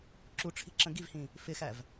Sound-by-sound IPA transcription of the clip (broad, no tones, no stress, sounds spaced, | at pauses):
ǁ u ʈ͡ʂʰ i̤ ǁ ə̃ ɡ i v h ĩ | f ɪ x æ v